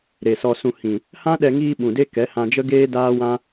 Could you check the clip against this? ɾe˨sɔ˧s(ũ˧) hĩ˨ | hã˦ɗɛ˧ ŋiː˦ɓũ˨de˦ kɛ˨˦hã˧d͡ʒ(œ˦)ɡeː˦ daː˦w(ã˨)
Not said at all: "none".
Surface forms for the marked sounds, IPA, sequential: ũ˧, ə˦, ã˦

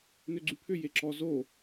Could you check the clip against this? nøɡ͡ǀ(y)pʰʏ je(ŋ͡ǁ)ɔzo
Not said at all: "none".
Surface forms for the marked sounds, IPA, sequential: y, ǁ

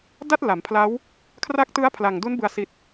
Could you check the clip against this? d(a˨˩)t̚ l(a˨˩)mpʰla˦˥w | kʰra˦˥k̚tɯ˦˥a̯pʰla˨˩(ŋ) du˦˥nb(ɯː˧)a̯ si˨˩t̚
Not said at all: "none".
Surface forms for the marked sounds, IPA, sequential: a˥˩, a˩˦, ŋ, ɯ˧

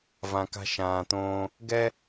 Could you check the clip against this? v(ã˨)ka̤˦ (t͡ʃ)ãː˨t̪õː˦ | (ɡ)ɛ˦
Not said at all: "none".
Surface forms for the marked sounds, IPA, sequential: ã˨, ʃ, ɡ

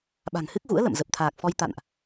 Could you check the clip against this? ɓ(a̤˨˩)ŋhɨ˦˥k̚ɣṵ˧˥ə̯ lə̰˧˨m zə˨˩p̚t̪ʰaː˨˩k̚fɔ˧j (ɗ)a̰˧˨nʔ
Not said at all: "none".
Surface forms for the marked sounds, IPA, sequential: a̤˨˩, t̪

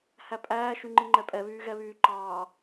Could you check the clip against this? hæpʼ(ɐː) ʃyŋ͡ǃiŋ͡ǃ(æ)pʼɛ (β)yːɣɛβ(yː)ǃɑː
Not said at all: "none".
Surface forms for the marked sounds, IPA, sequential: æː, ɛ, β, yː

